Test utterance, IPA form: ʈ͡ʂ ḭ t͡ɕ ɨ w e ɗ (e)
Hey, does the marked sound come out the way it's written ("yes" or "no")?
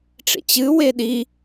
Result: no